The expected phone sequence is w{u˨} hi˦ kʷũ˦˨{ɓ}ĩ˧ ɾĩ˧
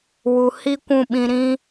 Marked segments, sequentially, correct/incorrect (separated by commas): correct, correct